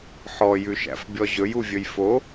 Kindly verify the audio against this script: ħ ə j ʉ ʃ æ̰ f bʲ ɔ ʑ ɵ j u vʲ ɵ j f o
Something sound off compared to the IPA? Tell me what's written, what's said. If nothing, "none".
ə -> ɔ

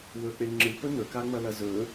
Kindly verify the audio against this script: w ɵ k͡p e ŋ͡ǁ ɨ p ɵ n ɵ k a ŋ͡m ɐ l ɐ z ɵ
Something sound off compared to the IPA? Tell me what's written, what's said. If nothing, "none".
none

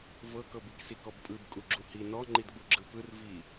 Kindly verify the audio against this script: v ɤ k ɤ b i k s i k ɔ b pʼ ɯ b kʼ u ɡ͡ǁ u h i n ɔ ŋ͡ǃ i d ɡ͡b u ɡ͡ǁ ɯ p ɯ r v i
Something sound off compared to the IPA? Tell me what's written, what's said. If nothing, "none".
none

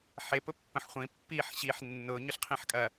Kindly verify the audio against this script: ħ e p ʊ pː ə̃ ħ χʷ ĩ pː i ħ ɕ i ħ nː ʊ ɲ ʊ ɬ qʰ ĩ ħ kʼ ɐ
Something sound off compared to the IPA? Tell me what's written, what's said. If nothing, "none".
none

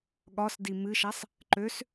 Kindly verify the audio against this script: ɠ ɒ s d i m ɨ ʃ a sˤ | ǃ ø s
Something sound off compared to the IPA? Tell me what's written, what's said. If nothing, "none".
none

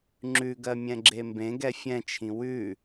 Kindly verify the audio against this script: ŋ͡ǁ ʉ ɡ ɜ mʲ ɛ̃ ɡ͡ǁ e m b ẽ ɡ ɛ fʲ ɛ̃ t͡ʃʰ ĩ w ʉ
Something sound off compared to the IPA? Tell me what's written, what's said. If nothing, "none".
none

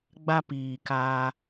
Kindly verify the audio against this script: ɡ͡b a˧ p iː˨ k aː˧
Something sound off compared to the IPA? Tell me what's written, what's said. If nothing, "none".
none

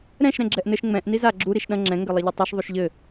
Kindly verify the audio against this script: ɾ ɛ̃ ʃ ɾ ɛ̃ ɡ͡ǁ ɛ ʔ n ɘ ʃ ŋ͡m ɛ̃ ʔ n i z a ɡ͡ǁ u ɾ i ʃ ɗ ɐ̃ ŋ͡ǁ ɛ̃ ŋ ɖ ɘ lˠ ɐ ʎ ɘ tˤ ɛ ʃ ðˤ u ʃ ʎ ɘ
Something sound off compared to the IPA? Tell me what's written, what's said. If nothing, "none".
ɖ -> ɡ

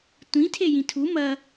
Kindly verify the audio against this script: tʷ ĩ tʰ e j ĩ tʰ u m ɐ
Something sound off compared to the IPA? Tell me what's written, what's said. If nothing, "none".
none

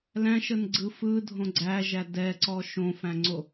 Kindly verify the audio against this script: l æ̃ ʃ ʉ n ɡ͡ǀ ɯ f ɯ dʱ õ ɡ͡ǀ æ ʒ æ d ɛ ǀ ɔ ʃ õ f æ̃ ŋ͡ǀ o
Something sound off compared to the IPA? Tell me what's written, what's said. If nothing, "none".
ʉ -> ə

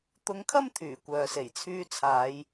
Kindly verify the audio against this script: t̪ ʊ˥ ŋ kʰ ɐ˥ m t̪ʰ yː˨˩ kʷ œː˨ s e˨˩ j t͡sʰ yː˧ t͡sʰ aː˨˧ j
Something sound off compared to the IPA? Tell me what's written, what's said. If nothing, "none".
ʊ˥ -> ʊ˧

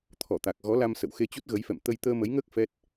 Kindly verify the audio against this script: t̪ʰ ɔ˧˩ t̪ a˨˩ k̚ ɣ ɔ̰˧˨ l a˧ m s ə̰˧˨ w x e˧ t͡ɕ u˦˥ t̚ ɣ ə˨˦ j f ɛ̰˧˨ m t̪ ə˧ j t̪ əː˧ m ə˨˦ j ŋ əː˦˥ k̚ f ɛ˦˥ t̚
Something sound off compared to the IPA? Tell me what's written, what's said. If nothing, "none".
ɔ̰˧˨ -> ɔ˨˦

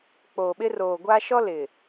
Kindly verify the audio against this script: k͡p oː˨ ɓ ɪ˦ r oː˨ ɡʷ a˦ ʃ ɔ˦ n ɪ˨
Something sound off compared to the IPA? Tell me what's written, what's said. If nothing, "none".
n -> l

